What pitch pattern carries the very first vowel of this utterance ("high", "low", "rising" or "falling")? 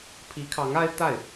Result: rising